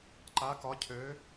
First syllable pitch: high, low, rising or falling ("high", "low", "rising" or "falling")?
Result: rising